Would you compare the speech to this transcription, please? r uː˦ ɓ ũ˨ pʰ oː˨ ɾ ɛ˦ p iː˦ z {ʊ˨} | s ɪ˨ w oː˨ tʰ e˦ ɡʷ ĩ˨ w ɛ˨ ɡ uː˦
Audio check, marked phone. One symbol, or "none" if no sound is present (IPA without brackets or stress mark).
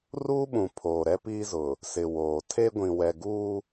ʊ˨